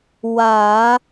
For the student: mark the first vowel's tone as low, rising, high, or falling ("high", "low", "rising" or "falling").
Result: low